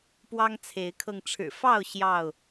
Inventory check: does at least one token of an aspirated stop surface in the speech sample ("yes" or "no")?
yes